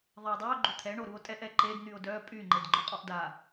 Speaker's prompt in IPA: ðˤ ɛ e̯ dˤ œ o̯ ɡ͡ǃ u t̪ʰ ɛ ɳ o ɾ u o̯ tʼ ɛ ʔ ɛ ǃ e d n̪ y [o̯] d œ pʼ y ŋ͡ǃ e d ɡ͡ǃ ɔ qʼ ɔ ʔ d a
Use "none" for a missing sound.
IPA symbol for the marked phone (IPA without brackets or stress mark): o̯